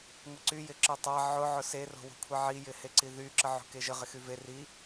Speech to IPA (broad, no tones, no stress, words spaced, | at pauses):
ŋʷɪǀy jɪǁətˤa ʕʊ ʕʊse ro̤wo̤kʷʰeʕi jɪheǀiðy ǁəʕo̤keʒə ʁɪxyve ri